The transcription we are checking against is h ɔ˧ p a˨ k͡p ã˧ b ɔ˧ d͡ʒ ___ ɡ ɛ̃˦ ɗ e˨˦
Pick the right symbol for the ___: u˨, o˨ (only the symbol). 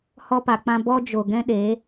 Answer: o˨